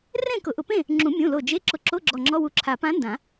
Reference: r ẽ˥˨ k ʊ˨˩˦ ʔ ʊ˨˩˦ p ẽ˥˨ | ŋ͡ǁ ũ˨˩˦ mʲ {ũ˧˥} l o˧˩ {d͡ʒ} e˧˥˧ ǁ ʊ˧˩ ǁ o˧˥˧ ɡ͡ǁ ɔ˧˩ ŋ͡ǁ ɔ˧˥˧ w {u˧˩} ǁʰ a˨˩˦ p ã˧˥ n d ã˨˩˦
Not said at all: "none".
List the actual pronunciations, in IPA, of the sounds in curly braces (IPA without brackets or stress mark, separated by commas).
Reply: ũ˩˧˩, d͡ʒ, u˧˩